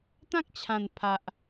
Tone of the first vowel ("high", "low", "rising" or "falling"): high